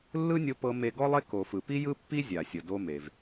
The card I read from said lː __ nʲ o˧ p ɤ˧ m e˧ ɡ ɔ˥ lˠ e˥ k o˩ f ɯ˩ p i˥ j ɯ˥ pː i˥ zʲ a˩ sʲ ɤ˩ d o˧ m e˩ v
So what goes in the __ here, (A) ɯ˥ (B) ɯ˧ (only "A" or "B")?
A